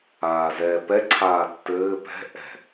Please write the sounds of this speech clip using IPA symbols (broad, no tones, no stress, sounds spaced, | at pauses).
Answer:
aː z ɛː p ɛ ǀʰ aː tː ɘː p ɛ̤ ʔ ɛ̤